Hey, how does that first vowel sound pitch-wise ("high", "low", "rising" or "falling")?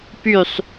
low